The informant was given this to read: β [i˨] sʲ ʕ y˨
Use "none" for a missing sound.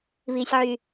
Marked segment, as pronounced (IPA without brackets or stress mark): i˨